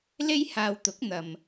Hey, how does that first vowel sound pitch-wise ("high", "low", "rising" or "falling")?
high